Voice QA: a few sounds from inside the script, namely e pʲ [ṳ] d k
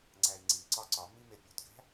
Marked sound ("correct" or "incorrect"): incorrect